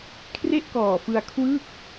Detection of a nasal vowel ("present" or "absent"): absent